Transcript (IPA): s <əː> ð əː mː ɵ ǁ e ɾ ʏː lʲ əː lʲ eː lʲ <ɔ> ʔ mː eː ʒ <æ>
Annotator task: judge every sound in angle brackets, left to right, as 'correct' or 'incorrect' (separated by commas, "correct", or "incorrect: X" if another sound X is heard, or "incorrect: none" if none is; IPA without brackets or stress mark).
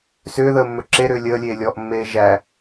incorrect: ʏː, correct, correct